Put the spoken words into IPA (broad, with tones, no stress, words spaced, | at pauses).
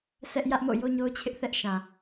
sʰɛ˦ʔ jä˦ʔmo̰˦˨ jo˦ɲo˦ʊ̯t͡ɕʰɪ˦ʔ θɛ˦ʔʃã˨